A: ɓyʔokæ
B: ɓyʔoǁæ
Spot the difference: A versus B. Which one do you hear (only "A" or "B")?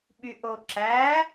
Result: B